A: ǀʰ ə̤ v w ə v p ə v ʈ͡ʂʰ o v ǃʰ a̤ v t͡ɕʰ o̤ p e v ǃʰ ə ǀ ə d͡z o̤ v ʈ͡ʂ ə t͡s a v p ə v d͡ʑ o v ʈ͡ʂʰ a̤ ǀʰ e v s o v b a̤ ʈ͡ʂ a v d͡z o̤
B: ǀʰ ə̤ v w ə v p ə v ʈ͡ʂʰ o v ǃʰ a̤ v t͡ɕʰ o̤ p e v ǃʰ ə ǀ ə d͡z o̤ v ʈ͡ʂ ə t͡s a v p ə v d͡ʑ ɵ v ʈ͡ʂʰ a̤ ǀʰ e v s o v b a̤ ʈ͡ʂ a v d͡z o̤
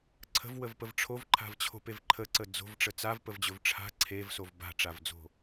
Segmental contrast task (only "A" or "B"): B